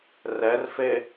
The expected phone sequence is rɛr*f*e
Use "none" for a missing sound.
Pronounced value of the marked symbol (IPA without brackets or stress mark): f